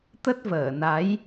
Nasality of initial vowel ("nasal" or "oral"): oral